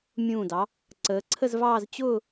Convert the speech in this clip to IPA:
mʲ ũː˧˩ d ɑ˩˧ | ǀ əː˩˧ ǀʰ ə˥˧ z v ɑː˥˧ z t͡ɕ ʊː˥˧

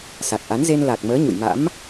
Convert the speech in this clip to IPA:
s a˨˩ k̚ ʔ a˨˦ n z e˧ n l a˨˩ k̚ m əː˨˦ ɲ ṵ˧˨ j m a̰˧˥ m

